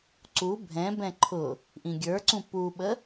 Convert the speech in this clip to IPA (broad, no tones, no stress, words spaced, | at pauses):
ǀu bʱɛ̃bɛ̃ ǃʰʊ | ʔĩɡʲə˞ǀũ puɓə